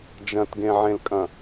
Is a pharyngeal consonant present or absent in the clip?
present